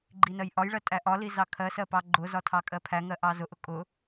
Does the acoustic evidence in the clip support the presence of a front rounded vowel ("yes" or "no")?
no